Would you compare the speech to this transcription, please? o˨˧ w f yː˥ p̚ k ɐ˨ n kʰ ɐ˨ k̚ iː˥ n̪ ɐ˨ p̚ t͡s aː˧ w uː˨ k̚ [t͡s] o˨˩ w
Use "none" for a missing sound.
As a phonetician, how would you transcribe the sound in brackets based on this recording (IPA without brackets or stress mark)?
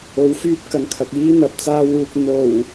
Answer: n̪